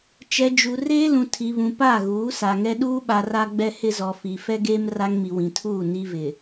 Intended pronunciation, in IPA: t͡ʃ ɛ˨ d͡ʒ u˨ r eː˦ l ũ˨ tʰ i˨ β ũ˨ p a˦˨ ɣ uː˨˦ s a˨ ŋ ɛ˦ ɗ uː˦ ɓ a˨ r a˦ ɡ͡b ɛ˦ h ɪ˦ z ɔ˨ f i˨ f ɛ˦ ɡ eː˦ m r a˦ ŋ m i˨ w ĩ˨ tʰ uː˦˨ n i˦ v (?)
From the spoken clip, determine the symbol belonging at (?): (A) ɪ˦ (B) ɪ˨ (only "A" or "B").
B